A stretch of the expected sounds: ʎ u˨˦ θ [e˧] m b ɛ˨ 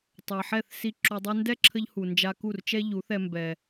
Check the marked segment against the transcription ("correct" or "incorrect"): incorrect